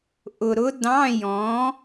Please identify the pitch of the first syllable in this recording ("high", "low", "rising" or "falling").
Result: low